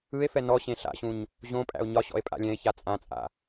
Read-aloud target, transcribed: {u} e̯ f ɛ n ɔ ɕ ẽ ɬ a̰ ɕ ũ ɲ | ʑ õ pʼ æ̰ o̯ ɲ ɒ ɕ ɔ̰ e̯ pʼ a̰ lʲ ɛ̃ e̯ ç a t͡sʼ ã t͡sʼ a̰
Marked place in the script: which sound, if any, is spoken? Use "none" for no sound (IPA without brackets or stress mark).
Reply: ɯ